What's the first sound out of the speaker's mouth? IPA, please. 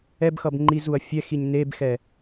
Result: ɛ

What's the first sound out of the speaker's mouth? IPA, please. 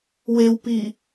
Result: w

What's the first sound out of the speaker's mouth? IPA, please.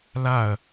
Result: l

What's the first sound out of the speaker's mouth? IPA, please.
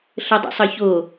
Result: ɬ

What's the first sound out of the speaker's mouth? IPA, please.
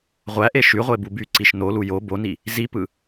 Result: ʁʷ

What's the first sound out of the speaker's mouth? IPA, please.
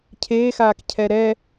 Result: cʰ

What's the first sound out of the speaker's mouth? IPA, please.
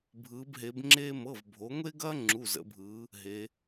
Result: bʱ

